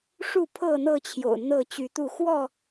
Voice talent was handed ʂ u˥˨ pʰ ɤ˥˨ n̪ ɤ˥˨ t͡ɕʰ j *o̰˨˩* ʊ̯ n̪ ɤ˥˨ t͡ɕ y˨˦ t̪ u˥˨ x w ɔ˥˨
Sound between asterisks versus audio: correct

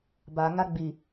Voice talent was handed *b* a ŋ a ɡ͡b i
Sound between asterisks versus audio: correct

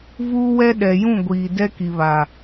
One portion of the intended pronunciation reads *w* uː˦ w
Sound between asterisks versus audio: incorrect: v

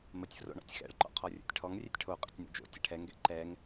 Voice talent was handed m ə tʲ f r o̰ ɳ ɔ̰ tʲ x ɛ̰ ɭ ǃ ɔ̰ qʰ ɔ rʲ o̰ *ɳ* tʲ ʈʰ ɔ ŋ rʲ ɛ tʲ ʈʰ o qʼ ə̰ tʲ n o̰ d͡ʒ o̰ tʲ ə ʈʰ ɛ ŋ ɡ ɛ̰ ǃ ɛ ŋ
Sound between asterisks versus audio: incorrect: none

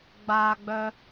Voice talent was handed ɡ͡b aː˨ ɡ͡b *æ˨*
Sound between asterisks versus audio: incorrect: œ˨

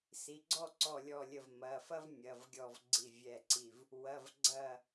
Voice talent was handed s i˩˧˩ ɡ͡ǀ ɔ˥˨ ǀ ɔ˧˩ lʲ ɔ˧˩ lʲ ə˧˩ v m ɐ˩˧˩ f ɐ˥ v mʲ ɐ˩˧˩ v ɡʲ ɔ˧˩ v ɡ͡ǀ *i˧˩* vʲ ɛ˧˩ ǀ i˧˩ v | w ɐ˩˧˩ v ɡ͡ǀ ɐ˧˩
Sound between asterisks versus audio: correct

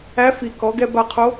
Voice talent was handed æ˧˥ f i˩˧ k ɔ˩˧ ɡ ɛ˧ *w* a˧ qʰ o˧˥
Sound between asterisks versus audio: incorrect: b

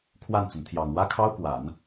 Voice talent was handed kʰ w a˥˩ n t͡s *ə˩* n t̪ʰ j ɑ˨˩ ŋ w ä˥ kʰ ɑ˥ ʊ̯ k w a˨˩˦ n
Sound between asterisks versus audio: correct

